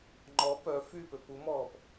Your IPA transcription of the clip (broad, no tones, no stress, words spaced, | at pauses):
ŋ͡ǃɔ pœ fypø pumɔːp